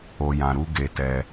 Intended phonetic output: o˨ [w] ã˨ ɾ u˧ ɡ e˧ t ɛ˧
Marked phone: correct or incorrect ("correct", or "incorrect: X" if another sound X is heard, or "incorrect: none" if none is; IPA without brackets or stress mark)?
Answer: incorrect: j